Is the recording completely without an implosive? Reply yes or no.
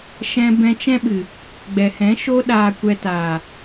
no